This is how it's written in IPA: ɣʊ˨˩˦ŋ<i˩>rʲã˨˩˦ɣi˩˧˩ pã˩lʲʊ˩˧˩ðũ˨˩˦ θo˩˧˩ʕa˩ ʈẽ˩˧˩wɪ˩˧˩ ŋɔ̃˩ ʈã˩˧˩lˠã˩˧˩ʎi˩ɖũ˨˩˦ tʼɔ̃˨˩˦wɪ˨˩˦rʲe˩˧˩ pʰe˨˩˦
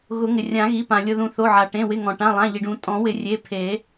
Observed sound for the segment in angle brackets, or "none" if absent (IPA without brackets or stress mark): ɪ˩